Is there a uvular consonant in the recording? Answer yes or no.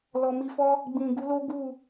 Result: no